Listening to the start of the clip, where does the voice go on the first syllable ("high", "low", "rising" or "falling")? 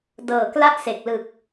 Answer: low